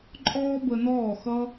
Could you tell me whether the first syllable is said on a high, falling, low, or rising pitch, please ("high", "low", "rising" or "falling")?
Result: high